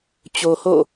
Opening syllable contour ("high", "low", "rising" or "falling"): low